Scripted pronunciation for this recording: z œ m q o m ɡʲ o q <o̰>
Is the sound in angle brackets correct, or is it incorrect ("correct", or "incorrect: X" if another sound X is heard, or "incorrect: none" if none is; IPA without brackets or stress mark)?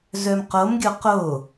incorrect: o